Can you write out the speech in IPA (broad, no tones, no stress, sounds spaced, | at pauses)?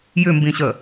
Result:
j ʏ m b ĩ ɕ ə